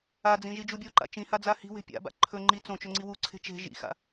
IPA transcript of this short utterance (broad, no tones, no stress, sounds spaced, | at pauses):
a d͡z ĩ ʒ i d͡ʒ u bʲ o ǃ a̰ t͡ʃ ĩ h a d͡z a h i̤ w e̤ pʲ a̰ b a̰ ǃʰ ɵ ŋ͡ǃ i t͡s õ t͡ʃ ɵ ŋ͡ǀ i w u ǀʰ e̤ t͡ʃ e̤ ʒ ḭ x a̰